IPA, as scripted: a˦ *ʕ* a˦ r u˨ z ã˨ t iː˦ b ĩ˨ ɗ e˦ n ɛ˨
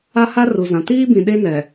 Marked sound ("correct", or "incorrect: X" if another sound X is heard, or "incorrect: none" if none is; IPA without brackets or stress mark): incorrect: h